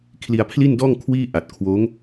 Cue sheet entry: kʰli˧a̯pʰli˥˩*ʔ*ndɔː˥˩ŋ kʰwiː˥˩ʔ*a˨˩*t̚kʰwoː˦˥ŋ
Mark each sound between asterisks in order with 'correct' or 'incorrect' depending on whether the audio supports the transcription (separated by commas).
incorrect, correct